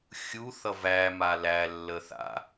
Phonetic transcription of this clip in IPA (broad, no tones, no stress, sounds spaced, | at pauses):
xʲ u θ ʌ v æ m a l æ lː ə θ a̰